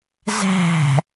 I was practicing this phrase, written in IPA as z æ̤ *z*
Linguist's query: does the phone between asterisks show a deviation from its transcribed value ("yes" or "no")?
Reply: yes